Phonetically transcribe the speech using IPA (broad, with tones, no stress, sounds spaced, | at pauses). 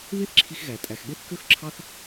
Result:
β e˦ θ ǁʰ i˧ x ɣ æ˨ tʼ æ˨ x ɠ e˦ θ k ø˦ x ǁʰ ɑ˦ θ